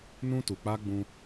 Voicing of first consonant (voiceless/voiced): voiced